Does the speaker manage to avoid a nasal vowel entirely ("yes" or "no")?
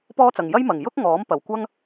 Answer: yes